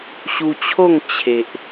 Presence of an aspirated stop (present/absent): present